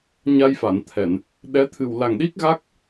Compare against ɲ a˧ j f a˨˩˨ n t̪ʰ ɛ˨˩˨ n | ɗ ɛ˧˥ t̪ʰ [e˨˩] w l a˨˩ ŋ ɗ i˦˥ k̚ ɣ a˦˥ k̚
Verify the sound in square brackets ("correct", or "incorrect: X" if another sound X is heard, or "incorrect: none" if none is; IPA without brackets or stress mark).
incorrect: ɨ˨˩